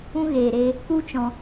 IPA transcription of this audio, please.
ũ˧ ɣ eː˨ ɾ e˧ | k u˦ t͡ʃ ɔ̃˧

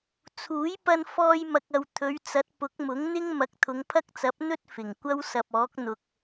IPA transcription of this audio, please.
t͡sʰ uː˨˥ j p ɐ˧ n f ɔː˧ j m ɐ˨ k̚ ɐ˨ w t̪ʰ ɵ˨˧ ɥ t͡s ɐ˨˥ t̚ p ʊ˨˥ k̚ m ʊ˨˥ ŋ n̪ ɪ˥ ŋ m ɐ˨˥ k̚ t̪ʰ ʊ˨˧ ŋ pʰ ɐ˥ k̚ t͡s ɐ˨˥ p̚ n̪ ɵ˥ t̚ f ɪ˨˩ ŋ kʷ ɐ˥ w s ɐ˨ p̚ ɔː˨˥ k̚ n̪ ʊ˨ k̚

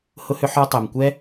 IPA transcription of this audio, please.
h ʊ˥ h ʏ˥ ħ ɔ˥ tˤ ɛ˩ m kʷ ɛ˥

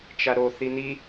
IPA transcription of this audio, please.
t͡ʃ a ɾ o θ i n i

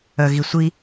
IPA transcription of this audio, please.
œ ɣ i sʷ i

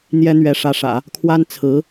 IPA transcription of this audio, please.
n̪ j ɛ˥ n̪ ɥ ɛ˧˥ ʂ ä˧˥ ʂ ä̰˨˩˦ | kʰ w a˥ n t͡sʰ ɹ̩˧˥

